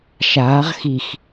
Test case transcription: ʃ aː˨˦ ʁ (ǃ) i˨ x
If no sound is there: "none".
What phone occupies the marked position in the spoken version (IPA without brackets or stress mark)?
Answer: x